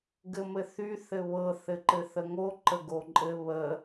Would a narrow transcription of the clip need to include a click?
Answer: yes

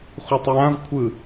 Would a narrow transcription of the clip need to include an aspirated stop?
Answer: yes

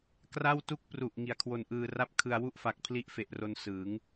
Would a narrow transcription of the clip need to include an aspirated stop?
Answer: yes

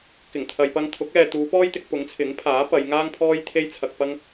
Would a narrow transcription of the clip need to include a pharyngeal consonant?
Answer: no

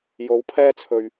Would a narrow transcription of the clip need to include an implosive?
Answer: no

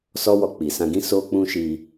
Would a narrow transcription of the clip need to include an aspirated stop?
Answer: no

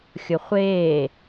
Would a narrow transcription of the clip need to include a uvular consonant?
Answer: yes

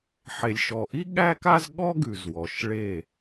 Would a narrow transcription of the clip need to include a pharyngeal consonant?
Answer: yes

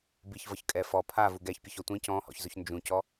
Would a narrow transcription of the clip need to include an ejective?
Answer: yes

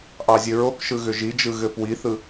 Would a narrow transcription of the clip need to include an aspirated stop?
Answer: no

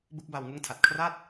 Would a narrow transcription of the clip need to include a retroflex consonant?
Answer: no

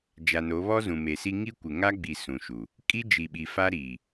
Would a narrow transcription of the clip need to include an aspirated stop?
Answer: no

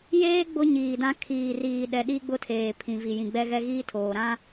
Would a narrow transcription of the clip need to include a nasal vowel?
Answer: yes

